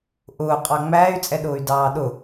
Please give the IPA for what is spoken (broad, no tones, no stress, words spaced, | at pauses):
ʔʊːqʼɑ ŋ͡mæːy̯t͡sʼɛɗʊːy̯ dɑːɗʊ